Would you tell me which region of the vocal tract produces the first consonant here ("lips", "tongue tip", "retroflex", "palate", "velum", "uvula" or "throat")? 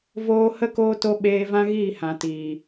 lips